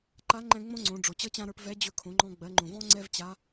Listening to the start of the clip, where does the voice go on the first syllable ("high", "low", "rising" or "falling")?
rising